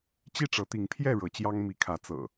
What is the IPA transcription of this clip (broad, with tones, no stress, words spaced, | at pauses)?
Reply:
t͡ɕi˥˨ʈ͡ʂɤ˨˦t̪i˨˦ŋpʰjɛ˥˨ ɻɤ˨˦t͡ɕjɑ˦ŋ mi˨˦kʰä˨˦ t͡sɤ̰˨˩